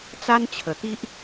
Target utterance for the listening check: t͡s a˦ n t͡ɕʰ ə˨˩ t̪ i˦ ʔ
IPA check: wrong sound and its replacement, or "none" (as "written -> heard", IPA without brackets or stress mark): none